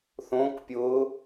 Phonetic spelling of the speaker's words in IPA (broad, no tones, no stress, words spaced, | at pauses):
θõːkpʲʊː